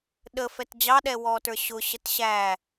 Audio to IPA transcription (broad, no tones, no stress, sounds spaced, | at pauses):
ɗ ə f ɛ t d͡ʑ ɑ ɗ ɛ w ɔː t ə˞ ɕ ʊ ɕ ə t ɕ æ